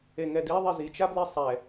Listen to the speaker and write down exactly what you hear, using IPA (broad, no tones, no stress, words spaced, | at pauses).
eŋɛdiðˤi zit͡ʃabli sˤɛ